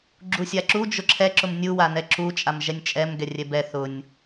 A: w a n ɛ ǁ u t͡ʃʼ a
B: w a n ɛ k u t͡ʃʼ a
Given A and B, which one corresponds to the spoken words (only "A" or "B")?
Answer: A